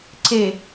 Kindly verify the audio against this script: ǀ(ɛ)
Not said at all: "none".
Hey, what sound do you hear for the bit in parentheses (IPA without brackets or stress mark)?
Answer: e